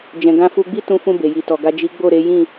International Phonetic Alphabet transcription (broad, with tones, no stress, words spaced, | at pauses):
d͡ʒɛ̃˨ ɡã˧fu˧ɡ͡bi˦ tũ˧fũ˧ be˨ji˨tɔ˨ ɡa˨ d͡ʒi˨˦ɡ͡bo˦˨ɾe˨˦jĩ˦˨